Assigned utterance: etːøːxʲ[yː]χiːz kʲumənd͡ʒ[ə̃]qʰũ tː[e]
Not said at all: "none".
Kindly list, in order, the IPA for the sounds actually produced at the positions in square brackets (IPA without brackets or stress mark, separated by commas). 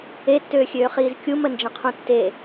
øː, ə̃, e